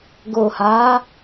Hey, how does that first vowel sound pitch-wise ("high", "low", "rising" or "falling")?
low